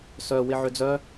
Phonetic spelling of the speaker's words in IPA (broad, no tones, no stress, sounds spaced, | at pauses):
s œ w ɪ ʕ ʏ d͡z œ